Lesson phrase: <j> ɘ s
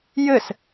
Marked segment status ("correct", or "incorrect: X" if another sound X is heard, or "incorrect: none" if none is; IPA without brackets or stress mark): correct